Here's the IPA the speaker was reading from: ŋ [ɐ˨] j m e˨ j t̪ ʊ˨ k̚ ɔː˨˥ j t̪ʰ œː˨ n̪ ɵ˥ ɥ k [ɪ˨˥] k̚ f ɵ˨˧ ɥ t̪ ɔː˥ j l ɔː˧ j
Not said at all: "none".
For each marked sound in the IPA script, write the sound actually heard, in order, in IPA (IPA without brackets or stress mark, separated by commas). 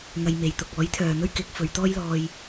ɐ˧, ɪ˨˥